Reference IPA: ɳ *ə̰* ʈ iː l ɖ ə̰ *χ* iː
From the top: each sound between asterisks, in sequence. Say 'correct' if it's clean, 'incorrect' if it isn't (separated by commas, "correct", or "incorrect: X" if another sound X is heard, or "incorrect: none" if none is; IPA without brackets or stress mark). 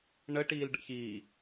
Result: incorrect: ə, incorrect: ç